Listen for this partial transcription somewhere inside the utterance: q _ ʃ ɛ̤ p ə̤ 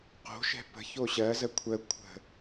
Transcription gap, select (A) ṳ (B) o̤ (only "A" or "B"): B